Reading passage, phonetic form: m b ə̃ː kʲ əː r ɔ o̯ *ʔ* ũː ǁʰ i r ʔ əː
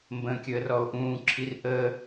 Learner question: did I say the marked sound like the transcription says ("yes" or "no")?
yes